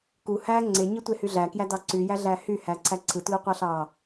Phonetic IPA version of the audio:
k u h æ ŋ͡ǀ e ɲ ɯ tʷ e h y ɮ æ k j æ d ɑ ǀ y j æ ɮ æ h y h æ ǀʰ æ ǀʰ ɯ t l u qʷ ɑ ɬ ɑ

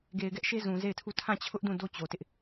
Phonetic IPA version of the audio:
ɡ e˨ ɪ̯ ɡ ɛ˦ ʔ ʃ e˦ z ũ˨ z e˦˨ ɪ̯ tʰ u˦˨ tʰ ã˦˨ t͡ɕʰ ʊ˦ ʔ d ũ˦˨ d o˦ t͡ɕ o˨ t ɪ˦ ʔ

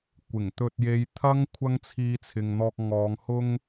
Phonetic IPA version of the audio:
kʷ ɪ˨˩ ŋ t̪ ɵ˧ t̚ j e˨˧ j t̪ʰ ɐ˥ ŋ kʷʰ ɐ˥ ŋ t͡sʰ iː˧ t͡sʰ ɪ˨ ŋ n̪ ɔː˧ k̚ ŋ ɔː˨˧ ŋ h ʊ˥ ŋ

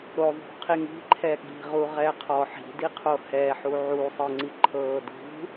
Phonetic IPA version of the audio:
ɾ o ðˤ ṳ qʰ i ŋ i̤ ǃʰ ɛ ɠ i̤ ʁ u ʁ ɛ qʰ ɔ ħ i̤ d i qʰ o h ɛ ħ u ʕ u sˤ ɤ ŋ͡ǀ i ǃʰ ɤː d ṳ

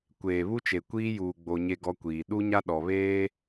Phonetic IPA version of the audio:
kʷ eː˨ β u˦ t͡ʃ e˨ kʷ iː˦ j uː˨ ɡ͡b o˨ ɲ e˦ ɡ ɔ˦ kʷ iː˨ ɗ u˦ ɲ a˦ ɗ ɔ˨ β eː˦

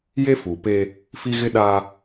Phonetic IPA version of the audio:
j e˦ f u˨ p eː˦ | f i˦ ɣ ɪ˦ ɗ aː˦

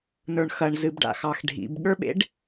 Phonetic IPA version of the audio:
n ə˞ ɳ x ɐ ɳ z ɨ b ɖ a̰ x ɑ x ɖʱ ḭ b ɠ ə˞ ɓ ḛ ɖ

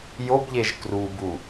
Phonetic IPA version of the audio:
j o b ʎ e ʒ k r u b u

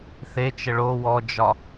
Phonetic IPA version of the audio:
θ e t͡ʃ ə ɭ o w ɔ d͡ʒ ɒ

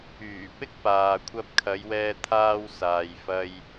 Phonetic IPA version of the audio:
yː˨˩ p ɪ˥ k̚ p aː˨ kʷʰ ɐ˧ p̚ kʰ ɐ˨˧ j w ɛː˧ t̪ʰ aː˧ w s aː˨ j f ɐ˧ j

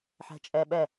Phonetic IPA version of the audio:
ħ ɛ̤ t͡ʃʼ ɛ ɓ ɛ

